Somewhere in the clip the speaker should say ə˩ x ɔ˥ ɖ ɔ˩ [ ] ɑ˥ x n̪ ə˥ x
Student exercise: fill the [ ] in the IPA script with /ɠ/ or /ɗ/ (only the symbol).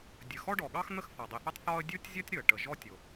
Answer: ɠ